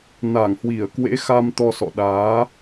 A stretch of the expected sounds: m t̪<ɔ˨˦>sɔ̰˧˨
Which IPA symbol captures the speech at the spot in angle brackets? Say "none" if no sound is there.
ɔ˧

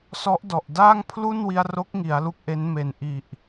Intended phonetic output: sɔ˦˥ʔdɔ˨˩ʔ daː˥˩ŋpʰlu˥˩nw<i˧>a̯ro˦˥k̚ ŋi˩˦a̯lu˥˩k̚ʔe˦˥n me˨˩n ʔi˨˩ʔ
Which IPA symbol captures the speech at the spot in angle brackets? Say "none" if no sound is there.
i˧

